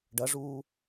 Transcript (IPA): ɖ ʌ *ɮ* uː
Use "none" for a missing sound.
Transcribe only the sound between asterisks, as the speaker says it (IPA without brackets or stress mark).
ʐ